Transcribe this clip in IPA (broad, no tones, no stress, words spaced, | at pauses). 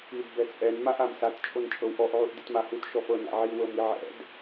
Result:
id bɛt͡sʼɛn maʔ amsat t͡ʃʼont͡ʃʼɤwʔɔʔ ʕuʔditmahut ʃɔfɤ na̰ʕi wɤmiʕɛ̰d